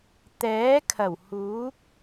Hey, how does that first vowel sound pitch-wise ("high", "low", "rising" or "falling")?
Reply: rising